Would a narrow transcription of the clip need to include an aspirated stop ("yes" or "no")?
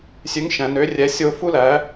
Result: no